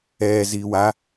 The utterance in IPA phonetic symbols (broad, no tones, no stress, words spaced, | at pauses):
ɛː ziːwa